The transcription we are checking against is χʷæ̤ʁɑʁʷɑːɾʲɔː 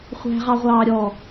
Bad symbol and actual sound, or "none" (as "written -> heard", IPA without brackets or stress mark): none